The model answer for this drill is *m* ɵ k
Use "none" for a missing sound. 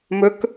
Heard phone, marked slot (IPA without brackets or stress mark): m